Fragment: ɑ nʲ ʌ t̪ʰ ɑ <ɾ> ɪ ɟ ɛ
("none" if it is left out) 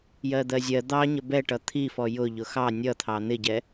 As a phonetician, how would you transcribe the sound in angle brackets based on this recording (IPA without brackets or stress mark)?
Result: n̪